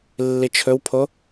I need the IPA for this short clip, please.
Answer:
lː i t͡ʃʰ ɵ w pʰ o

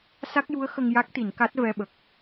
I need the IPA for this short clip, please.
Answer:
s a˦˥ k̚ j u˧˥ ə̯ x ə˧ ŋ j a˦˥ k̚ t̪ i˨˩˨ n k a˦˥ t̚ v ɛ˧ ɓ ə˨˩ k̚

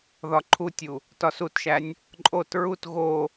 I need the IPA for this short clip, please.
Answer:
ð ɒ ǃʰ u tʲ u | t ɒ s u t ʃ æ nʲ | ǃʼ o t ɹ u t ɣ o

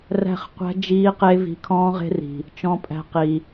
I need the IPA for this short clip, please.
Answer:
r æ̤˦˨ χ qʷ æ̤˦ d͡ʒ iː˦ q e˦ v i̤˧ kʰ ɔ̃ː˦ ʁ e̤˦ r i̤˨ | t͡ʃ ɔ̃˧ pʼ æ̤˧ q i˨

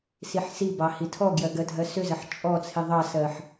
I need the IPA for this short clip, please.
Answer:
s i ħ s i b ɑ h i tʰ ɔ ɡ j ɜ ɡ ɜ dʱ ɜ s ʏ z ɜ ħ t͡ʃʼ ɔ t͡sʰ i ðˤ ɑ s ɜ ħ

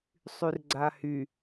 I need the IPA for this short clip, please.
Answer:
sˤ y r ɡ͡ǀ a h y

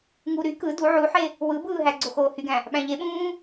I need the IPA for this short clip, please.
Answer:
ŋ u ɾ y k ɯ d u ʕ u ħ e | w ɯ b ɯː ɦ æ ɡ͡ǀ o x oː h y ɡ æ̃ | ɓ æ̃ ʎ e ɓ ũː

